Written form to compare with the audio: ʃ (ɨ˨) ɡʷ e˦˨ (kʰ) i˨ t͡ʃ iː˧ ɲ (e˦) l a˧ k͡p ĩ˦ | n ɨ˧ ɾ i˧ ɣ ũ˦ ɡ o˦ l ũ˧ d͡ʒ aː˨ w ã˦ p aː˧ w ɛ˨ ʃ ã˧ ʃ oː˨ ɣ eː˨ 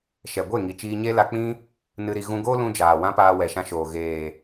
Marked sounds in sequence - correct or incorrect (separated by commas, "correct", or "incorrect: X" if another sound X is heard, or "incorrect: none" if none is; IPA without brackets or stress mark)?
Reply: incorrect: ɛ˨, incorrect: ŋ, correct